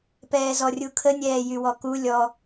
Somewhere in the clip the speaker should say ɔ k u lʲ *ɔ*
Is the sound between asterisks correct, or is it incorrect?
correct